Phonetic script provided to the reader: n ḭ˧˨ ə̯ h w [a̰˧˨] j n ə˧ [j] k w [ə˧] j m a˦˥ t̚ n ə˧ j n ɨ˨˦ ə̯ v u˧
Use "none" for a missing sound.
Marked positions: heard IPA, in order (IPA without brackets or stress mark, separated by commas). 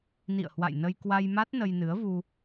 a̰˧˨, j, a˧